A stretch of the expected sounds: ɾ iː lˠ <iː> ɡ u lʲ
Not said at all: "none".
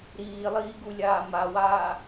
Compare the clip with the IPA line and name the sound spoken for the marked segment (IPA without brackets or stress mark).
iː